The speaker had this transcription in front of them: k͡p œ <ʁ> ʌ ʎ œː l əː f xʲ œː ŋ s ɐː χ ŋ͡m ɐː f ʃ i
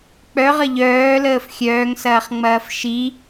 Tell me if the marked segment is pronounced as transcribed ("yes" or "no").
yes